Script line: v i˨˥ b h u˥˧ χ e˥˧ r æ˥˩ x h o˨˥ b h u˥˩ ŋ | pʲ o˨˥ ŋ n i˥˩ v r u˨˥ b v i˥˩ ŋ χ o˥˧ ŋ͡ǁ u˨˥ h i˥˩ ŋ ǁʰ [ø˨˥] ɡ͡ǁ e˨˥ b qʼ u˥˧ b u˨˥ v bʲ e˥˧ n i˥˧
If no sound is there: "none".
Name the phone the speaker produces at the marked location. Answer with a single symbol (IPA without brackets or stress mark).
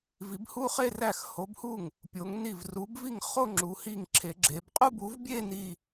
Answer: e˨˥